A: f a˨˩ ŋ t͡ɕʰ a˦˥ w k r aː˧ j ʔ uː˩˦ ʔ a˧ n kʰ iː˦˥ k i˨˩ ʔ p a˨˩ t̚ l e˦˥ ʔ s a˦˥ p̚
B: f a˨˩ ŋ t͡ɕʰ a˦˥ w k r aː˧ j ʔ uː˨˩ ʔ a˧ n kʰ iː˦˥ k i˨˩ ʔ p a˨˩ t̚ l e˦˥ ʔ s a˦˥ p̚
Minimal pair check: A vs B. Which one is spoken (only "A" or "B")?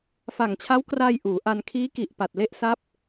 A